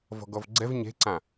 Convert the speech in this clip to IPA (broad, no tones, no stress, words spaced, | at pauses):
vɔ̤ɡɔvɡ͡ǀɛv ɲe̤ǀã